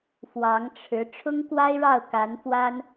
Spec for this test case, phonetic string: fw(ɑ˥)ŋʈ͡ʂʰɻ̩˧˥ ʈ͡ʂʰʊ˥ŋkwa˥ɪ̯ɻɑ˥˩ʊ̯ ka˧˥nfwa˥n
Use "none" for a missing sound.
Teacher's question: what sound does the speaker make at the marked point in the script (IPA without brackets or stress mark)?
ɑ˧˥